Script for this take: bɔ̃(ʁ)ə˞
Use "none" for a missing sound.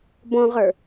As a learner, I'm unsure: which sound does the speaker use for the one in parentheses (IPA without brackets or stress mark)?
ʁ